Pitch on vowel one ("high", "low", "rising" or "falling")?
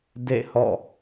falling